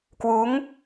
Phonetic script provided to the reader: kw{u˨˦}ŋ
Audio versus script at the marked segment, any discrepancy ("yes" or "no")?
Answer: no